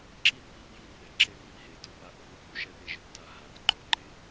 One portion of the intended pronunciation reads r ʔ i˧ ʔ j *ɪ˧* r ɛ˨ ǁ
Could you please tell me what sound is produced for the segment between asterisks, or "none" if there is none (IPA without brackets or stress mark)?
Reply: i˧